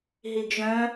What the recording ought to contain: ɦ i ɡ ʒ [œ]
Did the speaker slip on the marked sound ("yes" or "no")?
yes